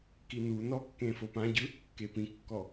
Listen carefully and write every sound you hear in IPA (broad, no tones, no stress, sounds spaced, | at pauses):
k i n u n ɔ kː ẽ f o p ã ɟ ɯ | k e p ĩ kː ɔ